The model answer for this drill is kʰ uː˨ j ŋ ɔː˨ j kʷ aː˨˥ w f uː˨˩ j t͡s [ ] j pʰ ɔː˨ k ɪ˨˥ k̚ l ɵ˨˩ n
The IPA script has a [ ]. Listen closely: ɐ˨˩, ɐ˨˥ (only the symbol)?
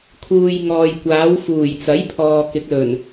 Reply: ɐ˨˥